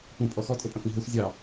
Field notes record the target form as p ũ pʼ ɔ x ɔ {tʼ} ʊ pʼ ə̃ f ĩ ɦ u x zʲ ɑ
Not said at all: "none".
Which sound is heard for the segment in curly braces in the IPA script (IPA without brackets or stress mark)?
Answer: tʼ